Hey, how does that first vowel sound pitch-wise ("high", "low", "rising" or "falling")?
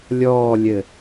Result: falling